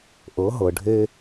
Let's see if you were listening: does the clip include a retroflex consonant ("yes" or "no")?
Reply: yes